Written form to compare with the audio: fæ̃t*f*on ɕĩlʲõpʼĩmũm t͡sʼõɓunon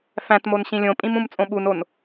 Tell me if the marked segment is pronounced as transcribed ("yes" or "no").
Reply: no